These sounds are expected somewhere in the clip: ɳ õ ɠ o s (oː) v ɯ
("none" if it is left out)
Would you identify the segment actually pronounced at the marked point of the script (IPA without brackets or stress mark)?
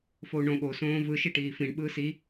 õː